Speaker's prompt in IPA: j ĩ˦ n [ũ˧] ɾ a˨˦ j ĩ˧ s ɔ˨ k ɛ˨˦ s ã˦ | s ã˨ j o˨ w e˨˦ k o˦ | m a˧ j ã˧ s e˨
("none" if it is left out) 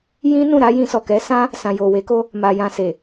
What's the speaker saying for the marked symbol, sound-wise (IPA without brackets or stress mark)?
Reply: ũ˦˨